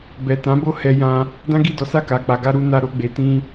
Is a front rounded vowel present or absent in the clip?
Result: absent